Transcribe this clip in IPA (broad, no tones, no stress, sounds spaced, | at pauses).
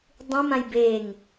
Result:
dˤ ĩ m ã j b e ŋ